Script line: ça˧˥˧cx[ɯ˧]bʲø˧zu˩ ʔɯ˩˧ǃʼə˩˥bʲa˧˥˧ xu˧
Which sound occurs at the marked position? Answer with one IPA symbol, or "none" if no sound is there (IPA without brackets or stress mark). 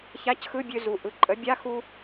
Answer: ɯ˧˥˧